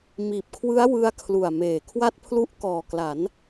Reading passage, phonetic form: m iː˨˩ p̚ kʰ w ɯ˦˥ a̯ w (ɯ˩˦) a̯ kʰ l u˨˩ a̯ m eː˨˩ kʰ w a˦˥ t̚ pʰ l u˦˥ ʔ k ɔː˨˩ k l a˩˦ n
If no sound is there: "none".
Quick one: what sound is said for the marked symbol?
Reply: ɯ˦˥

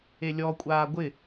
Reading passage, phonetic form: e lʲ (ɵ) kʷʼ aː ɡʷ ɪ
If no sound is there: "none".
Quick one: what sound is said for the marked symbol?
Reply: ɔ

